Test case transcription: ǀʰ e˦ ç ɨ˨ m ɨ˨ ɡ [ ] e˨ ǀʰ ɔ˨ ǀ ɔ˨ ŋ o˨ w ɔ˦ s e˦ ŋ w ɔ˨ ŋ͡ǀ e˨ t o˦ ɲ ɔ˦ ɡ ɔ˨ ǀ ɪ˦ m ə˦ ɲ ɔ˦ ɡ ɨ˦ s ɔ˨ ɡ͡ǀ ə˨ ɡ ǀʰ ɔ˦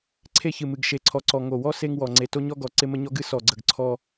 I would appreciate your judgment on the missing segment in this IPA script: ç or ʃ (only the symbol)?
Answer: ʃ